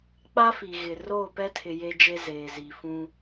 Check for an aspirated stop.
present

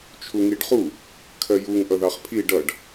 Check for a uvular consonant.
present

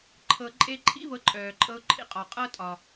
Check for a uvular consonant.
present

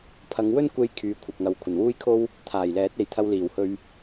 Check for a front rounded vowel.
present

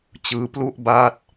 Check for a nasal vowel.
absent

